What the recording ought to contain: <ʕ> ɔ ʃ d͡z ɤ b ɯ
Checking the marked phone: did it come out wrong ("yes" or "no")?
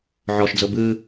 no